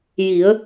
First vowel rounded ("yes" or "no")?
no